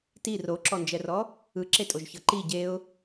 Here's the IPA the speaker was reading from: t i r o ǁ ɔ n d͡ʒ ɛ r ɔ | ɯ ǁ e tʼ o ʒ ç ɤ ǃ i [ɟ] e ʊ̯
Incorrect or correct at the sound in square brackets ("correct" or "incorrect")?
correct